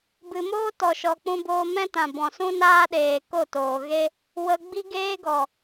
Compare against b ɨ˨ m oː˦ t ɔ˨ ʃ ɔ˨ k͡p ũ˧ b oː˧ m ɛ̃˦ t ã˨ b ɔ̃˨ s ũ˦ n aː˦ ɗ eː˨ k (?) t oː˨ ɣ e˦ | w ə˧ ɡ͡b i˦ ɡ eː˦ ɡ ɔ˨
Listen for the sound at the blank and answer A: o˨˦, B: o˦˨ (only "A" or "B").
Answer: B